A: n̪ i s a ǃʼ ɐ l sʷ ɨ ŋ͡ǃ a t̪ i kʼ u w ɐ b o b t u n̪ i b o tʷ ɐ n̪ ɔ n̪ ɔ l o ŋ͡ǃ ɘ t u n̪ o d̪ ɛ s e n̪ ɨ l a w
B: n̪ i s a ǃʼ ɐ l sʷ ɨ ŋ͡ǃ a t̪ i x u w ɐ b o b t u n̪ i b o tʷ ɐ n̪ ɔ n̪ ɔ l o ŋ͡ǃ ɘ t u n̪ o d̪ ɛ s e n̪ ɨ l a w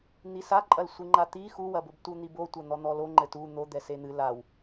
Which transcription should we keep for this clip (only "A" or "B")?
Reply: B